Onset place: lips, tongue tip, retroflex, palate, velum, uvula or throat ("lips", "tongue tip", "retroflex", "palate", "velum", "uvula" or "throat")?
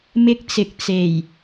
lips